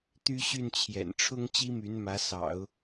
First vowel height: high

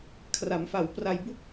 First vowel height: low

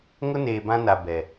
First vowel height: high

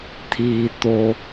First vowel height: high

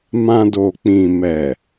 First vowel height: low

